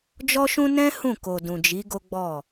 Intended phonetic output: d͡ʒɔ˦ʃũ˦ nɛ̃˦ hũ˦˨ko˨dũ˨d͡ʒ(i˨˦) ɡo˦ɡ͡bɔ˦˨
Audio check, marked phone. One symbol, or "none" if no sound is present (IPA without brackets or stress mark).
i˨˦